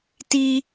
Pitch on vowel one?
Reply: high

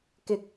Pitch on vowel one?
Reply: low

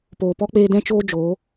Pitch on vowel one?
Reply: low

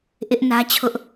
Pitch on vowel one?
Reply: high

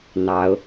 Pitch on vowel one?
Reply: rising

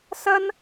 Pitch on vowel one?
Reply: high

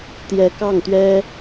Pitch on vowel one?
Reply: rising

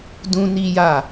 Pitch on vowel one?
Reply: high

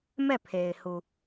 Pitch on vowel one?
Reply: falling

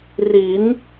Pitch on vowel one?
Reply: rising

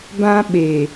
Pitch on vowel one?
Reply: high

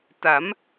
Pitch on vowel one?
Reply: rising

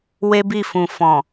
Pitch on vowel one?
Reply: high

